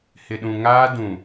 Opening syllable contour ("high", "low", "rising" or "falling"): low